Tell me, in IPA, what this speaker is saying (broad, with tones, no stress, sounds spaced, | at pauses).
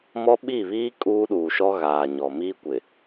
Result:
m ɔ˦ ɓ i˦˨ β iː˦ kʼ uː˦ ɗ uː˨ ʃ ɔ˦ ɣ aː˨ ɲ ɔ˨ m iː˦ kʷ ɪ˨